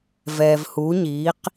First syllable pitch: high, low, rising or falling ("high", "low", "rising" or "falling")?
low